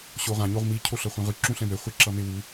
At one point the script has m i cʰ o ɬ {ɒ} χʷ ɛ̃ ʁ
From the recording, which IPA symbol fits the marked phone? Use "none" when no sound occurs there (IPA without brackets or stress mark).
ʌ